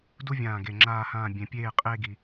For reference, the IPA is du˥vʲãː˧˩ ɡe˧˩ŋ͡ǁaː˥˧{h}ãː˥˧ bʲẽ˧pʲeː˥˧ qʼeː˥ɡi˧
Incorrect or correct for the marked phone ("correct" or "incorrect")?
correct